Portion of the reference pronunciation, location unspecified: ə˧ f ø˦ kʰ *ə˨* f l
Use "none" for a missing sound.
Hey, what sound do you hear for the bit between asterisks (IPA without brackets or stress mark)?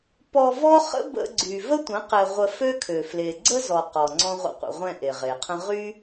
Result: ø˨